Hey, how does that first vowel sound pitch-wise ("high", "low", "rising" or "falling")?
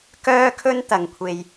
high